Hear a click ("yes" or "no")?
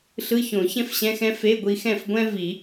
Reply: no